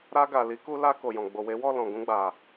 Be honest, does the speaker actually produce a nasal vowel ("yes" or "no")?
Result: yes